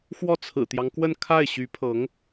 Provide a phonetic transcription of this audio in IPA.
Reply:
xwɔ˥˩t͡sʰɹ̩˨˩t̪jɑ˦ŋkwə˥˧n kʰa˥˩ɪ̯ ɕy˧˥pʰɤ˧˥ŋ

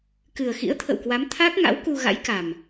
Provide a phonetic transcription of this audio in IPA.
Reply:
kɨ˨˩ə̯xḭ˧˥ə̯t̪ʰə̰˧˨wkwa˨˦m t̪ʰa˦˥k̚ ŋa̰˧˥wku˧ ɣa̰˧˥jka˨˩m

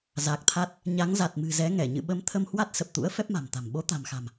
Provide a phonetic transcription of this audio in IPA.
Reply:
za˨˩k̚t̪ʰa˦˥t̚ | ɲa˨˦ŋza˨˩t̚mɨ̤˨˩zɛ˨˦ ŋɛ˧˩ ɲɨ̰˧˨ɓə˨˦m t̪ʰə˧mhwa˦˥t̚sə˨˩p̚t̪ṵ˧˥ə̯ fɛ˦˥p̚ma̤˨˩mt̪a̤˨˩m ɓo˨˦t̪a̤˨˩mxa̤˨˩m

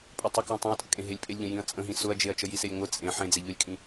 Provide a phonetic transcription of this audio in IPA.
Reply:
pʼʊtˤə kjə̃tˤẽɐ̯tʼəkʼẽ ɦelʲpʼelʲʎə̃ jĩɐ̯t͡sʼə̃ɦĩ sʊɐ̯d͡ʒeɐ̯ t͡ʃəjiselʲŋʷɘ t͡sʼẽ ħẽd͡ze ʎʊlʲkʼĩ

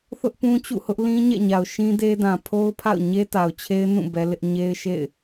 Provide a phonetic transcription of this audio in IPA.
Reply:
θʊ˦ʔpũ˦t͡ɕṵ˦˨hʊ˦ʔ lĩ˦ɲɛ̰˦˨ ɲa˨ʊ̯ ʃĩ˦de˦dã˨ pʰo˦ʊ̯pʰa̰˦˨ʊ̯ɲe˦ ta˨ʊ̯t͡ɕʰe˦ɪ̯nũ˦˨ bɛ˦lɪ˦ʔ ɲe˦ɪ̯ʃḛ˦˨ɪ̯

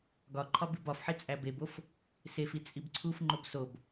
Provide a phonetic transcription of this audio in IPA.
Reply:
ɡɒǃʰɒb ibɒfħi t͡sʼæbebof | sefi t͡sʼibǀʰufŋ͡ǃob sob

